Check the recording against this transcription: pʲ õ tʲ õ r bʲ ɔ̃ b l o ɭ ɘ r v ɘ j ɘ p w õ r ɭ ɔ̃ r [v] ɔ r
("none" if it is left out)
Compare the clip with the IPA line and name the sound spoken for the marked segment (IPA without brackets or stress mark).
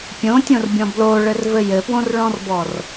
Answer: b